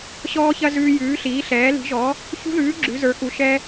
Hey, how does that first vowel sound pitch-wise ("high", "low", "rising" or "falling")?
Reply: high